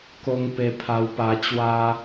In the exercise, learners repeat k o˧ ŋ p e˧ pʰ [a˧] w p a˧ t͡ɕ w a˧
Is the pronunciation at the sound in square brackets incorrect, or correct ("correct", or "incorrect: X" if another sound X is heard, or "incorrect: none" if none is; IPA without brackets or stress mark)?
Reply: correct